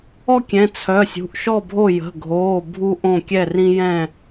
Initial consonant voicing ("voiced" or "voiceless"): voiceless